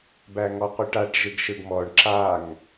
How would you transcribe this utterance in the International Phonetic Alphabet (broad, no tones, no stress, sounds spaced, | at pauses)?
b æ ŋ ɔ qʷ œ ʈ a ʈ ʒ ɯ ɡ ʃ ɯ ɡ m ɔ ɳ ǁ a ŋ